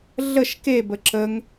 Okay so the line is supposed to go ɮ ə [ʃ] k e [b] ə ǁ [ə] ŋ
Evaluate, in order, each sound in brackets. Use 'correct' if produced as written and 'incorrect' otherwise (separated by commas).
correct, correct, correct